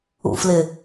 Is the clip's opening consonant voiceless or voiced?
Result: voiceless